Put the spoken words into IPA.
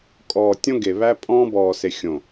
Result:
kʼ ɔː˨ tʲ õ˦ ɡ e˨ β æ˦ pʼ ɔ̃ː˦ b ɔː˨ s e˨ xʲ õ˨

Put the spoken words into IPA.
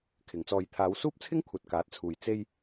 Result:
kʰ ɪ˨˧ ŋ t͡s ɔː˧ j t̪ʰ aː˨˧ w s uː˥ p̚ t͡sʰ ɪ˥ ŋ kʷʰ ɐ˨ t̚ k aː˨˥ t̚ t͡sʰ uː˨ j t͡s e˧ j

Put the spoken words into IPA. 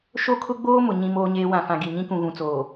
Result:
ʃ o˦ kʰ ʊ˦ ɡ͡b oː˦ m ʊ˨ ɲ ĩ˦ m oː˦ ɲ eː˦ w ã˨ f ã˨ ɡ i˨ ɲ ĩ˦ k ũ˨ ɣ ũ˨ t͡s oː˨

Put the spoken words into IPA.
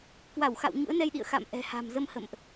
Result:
k w a˧˩ w x a̰˧˨ w ɲ ṵ˧˥ ə̯ n ɛ˧ j ɗ ḭ˧˨ ə̯ x a̰˧˨ m ʔ ɛ̤˨˩ h a̤˨˩ m z ə˧ m h ə̰˧˨ m ʔ

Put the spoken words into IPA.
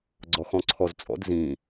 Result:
ɡ͡ǀ ɔ x ɔ̃ ǀʰ ɔ z t͡sʼ ɔ̰ d z ĩ

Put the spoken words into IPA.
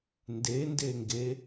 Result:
n d e n d e ŋ ɡ e

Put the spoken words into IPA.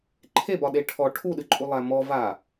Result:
ǃʰ e b ɒ ɗ e ʈʰ ɔ ʈʰ u ɗ ɨ ǃʼ u lˠ æ m ɔ v a

